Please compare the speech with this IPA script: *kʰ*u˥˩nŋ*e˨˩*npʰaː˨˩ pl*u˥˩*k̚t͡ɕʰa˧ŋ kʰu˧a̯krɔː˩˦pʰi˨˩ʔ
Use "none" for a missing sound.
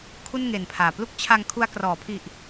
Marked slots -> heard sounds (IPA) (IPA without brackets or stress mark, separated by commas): kʰ, e˨˩, u˥˩